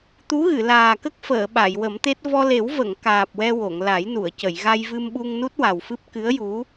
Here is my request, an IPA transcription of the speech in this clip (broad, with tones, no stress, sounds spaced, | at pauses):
t̪ u˧˥ ɣ ɨ˨˩˨ l aː˨˩ k ə˦˥ k̚ f əː˨˩˨ ɓ a˨˩˨ j w ə˨˩˦ m t̪ e˦˥ t̚ v ɔ˧ l e˨˩˦ w v ə˨˩˨ ŋ k aː˨˩ p̚ w ɛ˧ w o˨˩˨ ŋ l a˨˩˦ j n u˨˩˨ ə̯ c ə˨˩˨ j ɣ a˧ j v ɨ˧ m ɓ u˧ ŋ n u˦˥ t̚ w a˨˩ w f ɨ˦˥ p̚ k ɨ˧˥ ə̯ j u˧˥